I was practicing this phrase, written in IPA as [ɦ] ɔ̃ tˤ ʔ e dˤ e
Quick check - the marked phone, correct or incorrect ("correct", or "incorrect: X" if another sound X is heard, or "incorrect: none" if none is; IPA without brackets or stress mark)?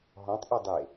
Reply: correct